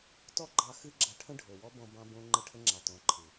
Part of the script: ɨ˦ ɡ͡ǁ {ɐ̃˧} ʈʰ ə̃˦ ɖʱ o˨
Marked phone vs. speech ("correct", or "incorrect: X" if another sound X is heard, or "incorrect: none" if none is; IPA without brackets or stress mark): incorrect: ɐ˧